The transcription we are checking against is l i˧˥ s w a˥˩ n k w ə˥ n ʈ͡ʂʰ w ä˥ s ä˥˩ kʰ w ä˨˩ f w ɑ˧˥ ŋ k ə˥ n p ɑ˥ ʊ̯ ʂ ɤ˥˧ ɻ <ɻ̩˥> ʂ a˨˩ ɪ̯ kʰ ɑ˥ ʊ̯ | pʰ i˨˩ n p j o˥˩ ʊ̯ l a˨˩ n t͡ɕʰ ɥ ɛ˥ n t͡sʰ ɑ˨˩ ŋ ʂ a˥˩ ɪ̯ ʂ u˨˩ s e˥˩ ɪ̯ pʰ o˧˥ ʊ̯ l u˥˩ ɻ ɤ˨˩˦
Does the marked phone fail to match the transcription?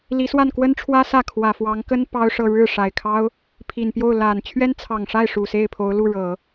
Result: yes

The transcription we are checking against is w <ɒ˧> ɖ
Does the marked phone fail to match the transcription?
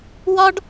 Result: no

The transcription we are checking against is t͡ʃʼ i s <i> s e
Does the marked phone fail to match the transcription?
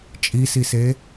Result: no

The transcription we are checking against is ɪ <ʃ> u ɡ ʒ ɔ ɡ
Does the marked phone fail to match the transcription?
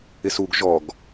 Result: yes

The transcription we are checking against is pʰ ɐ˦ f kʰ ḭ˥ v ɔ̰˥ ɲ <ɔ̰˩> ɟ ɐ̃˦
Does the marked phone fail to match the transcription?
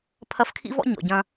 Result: yes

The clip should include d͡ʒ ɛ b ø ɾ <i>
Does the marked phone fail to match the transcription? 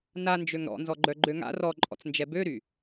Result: yes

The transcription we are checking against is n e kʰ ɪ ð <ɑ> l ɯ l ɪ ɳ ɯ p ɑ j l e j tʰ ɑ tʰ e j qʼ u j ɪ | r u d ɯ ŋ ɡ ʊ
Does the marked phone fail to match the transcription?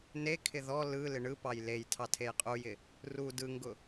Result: yes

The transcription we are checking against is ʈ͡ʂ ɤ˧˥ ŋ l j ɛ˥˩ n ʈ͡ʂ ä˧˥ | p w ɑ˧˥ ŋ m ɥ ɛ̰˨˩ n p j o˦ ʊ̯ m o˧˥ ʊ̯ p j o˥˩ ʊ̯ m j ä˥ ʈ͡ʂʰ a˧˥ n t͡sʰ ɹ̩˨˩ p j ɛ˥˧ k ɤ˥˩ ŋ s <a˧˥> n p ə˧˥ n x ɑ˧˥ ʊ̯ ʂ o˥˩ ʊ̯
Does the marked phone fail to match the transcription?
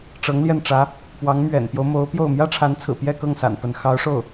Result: yes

